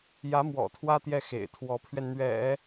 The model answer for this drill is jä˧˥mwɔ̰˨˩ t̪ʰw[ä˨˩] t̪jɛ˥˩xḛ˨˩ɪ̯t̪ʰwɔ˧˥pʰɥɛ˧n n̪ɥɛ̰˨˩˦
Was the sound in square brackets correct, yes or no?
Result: no